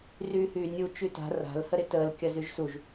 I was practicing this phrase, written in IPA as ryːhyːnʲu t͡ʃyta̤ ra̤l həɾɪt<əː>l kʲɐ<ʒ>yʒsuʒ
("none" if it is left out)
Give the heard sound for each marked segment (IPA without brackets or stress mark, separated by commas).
əː, z